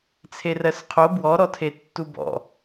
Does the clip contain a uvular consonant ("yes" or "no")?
yes